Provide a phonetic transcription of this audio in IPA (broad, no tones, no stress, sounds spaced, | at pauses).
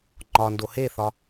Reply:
ŋ͡ǃ ɒ n d o h e θ ɒ